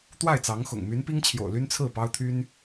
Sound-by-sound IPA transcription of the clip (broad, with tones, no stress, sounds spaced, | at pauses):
t̪ w a˥˩ ɪ̯ t͡s ɑ˧˥ ŋ x ʊ̰˨˩ ŋ m y˧˥ n p i˥ ŋ t͡ɕʰ j o̰˨˩ ʊ̯ l y˥ n t͡sʰ ɹ̩˥˩ p ɑ˥ ʊ̯ t̪ʰ y˥ n